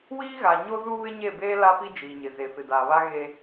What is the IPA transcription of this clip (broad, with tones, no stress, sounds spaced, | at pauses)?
w iː˦ ɣ a˨ ɲ o˦ z u˦ β ɪ˦ ɲ e˦˨ b eː˦ l a˦ p i˦ d͡ʒ iː˨ ɲ ɪ˨ z e˨ f ɪ˨ d aː˨ β a˦ ɣ e˦